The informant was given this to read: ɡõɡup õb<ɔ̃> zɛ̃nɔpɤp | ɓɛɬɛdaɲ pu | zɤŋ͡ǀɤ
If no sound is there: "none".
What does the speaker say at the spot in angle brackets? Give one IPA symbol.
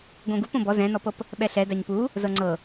ɔ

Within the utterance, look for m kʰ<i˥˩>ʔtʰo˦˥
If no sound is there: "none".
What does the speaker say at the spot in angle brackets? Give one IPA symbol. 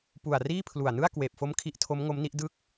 i˦˥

